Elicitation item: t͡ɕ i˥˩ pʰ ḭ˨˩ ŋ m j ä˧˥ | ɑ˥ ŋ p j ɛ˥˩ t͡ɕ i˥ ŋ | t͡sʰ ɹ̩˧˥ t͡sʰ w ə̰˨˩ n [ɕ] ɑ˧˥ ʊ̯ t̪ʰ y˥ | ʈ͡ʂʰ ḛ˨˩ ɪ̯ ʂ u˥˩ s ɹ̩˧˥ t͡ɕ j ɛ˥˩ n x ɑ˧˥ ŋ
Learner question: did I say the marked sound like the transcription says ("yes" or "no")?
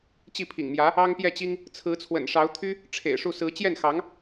no